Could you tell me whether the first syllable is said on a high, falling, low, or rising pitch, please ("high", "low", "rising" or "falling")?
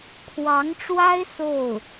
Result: rising